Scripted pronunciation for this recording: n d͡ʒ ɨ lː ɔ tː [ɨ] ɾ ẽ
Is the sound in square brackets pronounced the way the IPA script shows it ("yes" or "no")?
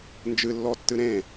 yes